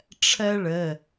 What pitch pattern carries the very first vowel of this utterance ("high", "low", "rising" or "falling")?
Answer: high